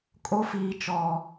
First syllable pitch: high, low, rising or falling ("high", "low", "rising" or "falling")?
high